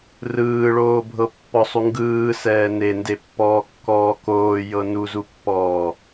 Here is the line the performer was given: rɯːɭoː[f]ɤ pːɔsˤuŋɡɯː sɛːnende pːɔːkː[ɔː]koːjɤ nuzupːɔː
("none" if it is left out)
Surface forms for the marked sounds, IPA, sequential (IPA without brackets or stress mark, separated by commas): bʱ, ɔː